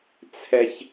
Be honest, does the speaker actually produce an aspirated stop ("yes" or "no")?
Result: yes